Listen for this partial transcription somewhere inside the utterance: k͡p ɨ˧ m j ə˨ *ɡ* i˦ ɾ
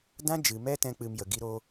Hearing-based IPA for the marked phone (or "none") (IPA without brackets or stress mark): ɡ